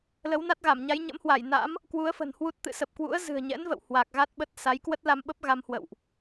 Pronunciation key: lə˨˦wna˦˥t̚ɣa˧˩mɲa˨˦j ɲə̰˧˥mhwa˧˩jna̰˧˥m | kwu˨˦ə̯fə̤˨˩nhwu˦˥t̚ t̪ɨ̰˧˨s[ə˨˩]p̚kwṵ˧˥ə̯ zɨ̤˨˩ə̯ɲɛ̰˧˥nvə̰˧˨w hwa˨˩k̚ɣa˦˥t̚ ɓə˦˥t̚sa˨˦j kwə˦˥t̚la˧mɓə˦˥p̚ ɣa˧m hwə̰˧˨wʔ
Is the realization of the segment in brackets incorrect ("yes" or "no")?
no